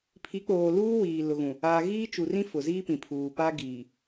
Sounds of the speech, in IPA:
pʰ i˨˦ k͡p oː˨ l uː˦ w iː˨ l ʊ˨ ɣ ũ˨ | aː˨ ɣ iː˦ t͡ʃ u˨ r ĩ˦ f ʊ˨ z iː˦ p ĩ˨ pʰ uː˨ p a˦ ɡ iː˨

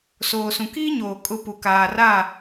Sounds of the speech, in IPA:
s oː˨ s ũ˨ k iː˦ ɲ oː˨ kʼ ʊ˨ p u˨ k aː˨ r a˦˨

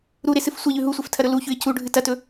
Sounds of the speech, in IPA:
ɾ u ɾ e s ɨ f sʷ ɐ ʎ ʉ ɦ u sʷ e f tʰ ɐ ɾ ɵ l u ç ʉ ɪ̯ c u ɖʱ ɨ t ɐ t ɵ

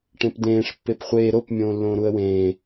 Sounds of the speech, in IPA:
ʈ ẽ p d̪ ẽː ʂ pː e p χʷ eː ɾ o p mʲ õː lː õː ɾ u ə̯ w ẽː

